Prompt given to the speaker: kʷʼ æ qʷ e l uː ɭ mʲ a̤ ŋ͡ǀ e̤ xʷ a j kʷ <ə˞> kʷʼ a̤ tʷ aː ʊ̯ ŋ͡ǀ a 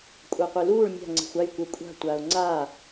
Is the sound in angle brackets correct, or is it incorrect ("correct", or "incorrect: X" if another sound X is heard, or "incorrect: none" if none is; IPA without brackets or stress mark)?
correct